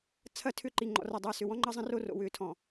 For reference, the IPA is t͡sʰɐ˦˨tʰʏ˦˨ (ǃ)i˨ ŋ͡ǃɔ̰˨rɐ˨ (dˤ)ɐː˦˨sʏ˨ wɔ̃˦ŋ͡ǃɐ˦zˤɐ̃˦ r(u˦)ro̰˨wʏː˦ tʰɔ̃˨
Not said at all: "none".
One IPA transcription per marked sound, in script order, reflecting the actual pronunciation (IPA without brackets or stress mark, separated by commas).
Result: ǃ, dˤ, o˦